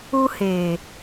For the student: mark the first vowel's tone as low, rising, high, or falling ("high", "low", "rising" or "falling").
high